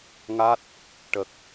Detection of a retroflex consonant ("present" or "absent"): present